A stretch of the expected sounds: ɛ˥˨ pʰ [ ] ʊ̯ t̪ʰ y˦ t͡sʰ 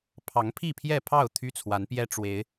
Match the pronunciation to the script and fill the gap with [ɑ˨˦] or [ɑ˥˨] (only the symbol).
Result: ɑ˥˨